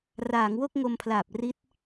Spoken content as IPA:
raː˩˦ŋwo˥˩k̚ ŋo˧mpʰlaː˨˩p̚ri˦˥t̚

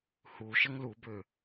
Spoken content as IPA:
hu ʃəŋlubø

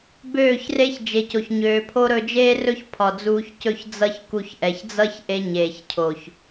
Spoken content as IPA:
bøː˦˨çre˦ç d͡ʒe˨co˨çɲøː˨ pʰo˦ ɾɵ˧d͡ʒeː˦rɵ˦ç pʰɒ˨d͡zuː˧çcɵ˦˨ç d͡zʌ˦çku˧ç ʔɛ˨çd͡zʌ˦çʔe˧ ɲeː˨çcʰo˨ç

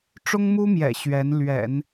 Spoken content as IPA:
ʈ͡ʂʊ˥ŋmu˥mjɛ̰˨˩ ɕɥɛ˧˥n lɥɛ̰˨˩˦n

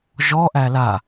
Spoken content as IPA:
ʒɔ ʔæla

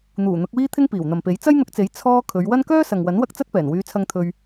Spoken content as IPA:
n̪uː˨˩ n̪ʊ˨˥k̚wiː˥t̪ʰɪ˥ŋ piː˨˩wn̪ɐ˨mpe˨˥j t͡sɐ˥jn̪ʊ˧k̚t͡se˨˥j t͡sʰɔː˥ kʰɵ˨˧ɥwɐ˥n kœː˥sɐ˨ŋwɐ˨˥n wɐ˥k̚t͡sɐ˥t̚ pɛː˨˩nwyː˨˧t͡sʰɐ˧ŋ t̪ʰɵ˧ɥ

